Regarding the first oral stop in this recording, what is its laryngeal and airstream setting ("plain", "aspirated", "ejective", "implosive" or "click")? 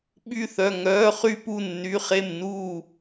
implosive